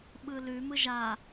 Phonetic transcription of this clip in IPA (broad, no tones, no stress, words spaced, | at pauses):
ɓɯlʉ mɯʒa